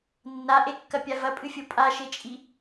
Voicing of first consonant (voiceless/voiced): voiced